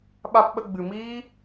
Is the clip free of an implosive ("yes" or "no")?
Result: no